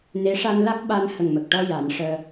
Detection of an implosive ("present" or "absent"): present